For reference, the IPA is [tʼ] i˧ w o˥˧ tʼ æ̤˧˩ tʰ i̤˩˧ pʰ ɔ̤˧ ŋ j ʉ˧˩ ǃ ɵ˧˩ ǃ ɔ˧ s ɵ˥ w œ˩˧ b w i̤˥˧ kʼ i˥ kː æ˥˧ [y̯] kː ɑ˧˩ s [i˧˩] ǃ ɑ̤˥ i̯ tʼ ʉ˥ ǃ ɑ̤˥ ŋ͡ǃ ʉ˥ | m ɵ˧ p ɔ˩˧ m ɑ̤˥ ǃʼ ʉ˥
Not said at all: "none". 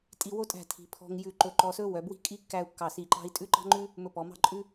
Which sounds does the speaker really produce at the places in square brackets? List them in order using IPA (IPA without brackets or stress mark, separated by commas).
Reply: tʼ, u̯, i˧˩